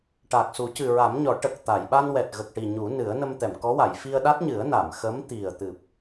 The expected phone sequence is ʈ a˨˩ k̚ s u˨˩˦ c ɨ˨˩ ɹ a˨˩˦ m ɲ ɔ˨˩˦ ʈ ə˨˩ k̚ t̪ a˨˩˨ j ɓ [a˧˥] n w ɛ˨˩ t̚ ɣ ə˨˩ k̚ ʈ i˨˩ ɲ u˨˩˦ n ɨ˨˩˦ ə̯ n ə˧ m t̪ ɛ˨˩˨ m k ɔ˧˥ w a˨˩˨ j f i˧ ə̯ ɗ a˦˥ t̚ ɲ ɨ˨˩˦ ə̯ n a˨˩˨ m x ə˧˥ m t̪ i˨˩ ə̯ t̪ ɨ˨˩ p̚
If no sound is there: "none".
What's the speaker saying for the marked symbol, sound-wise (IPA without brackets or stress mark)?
a˧